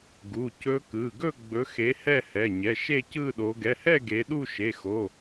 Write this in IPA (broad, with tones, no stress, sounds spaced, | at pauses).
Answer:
ɡ u˩˧˩ c ɵ˦˥ k ɯ˩˧˩ ɡ ɵ˥˧ ɡ͡b ɵ˨˦ x e˨˦ h ɛ˥˧ h ɛ˩˧˩ ɲ ɛ˩˧˩ ʃ e˥˧ c ɯ˥˧ ɗ o˨˦ ɡ ɛ˩˧˩ h ɛ˥˧ ɡ e˨˦ ɗ u˥˧ ʃ e˩˧˩ x o˩˧˩